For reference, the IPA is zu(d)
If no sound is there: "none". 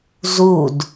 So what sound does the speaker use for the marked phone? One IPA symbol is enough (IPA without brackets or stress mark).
d